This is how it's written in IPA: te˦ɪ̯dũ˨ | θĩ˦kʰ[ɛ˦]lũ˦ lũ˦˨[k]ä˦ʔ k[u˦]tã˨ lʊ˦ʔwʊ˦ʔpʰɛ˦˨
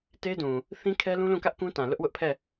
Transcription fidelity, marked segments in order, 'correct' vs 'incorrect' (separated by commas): correct, correct, incorrect